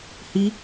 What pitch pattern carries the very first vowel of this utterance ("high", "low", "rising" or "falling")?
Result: high